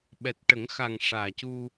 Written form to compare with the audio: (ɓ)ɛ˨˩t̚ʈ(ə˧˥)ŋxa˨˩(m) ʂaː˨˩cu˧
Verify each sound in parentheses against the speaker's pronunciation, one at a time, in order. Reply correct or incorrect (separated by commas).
correct, incorrect, incorrect